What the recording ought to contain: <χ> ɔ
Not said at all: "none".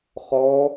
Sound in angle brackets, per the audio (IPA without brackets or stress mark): χ